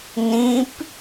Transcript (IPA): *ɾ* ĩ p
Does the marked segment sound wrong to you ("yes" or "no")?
yes